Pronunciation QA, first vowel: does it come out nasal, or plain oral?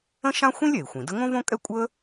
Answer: nasal